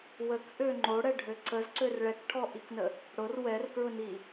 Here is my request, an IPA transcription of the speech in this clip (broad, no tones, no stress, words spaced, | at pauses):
wəkʔø ŋ͡ǃoɽɛɖʱø ǀəzǀør ɭɛkʈʰɔʔiknə | ɽʊr wɛrkɹʊni